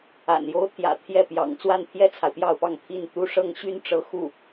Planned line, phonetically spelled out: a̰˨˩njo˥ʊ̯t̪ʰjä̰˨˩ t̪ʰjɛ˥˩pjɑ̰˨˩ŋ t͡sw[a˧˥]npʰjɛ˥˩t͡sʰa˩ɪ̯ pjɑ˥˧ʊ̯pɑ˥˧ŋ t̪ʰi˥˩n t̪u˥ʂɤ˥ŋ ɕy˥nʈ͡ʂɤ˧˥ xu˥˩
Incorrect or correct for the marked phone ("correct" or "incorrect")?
incorrect